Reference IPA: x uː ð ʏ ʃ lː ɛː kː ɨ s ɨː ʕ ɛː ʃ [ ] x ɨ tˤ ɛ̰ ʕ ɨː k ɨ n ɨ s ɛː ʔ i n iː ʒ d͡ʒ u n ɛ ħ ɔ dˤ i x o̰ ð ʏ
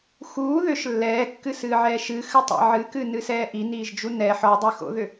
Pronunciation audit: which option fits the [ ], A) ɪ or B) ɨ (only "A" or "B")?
B